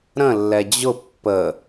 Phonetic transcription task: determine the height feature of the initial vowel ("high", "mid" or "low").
mid